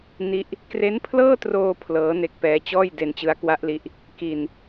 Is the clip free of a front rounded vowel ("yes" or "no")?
yes